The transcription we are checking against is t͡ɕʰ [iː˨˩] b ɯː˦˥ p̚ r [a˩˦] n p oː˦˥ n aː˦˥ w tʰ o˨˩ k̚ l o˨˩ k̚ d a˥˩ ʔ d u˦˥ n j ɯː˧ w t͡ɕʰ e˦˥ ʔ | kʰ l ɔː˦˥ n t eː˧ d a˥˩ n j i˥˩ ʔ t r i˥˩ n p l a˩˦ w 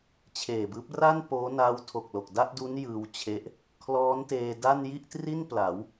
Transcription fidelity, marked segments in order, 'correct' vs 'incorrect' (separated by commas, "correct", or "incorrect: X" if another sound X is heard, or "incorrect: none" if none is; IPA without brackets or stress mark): incorrect: eː˨˩, incorrect: a˥˩